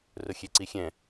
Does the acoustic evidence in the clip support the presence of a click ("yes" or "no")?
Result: yes